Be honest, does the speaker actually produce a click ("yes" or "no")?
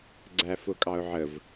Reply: yes